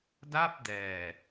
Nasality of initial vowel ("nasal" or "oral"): oral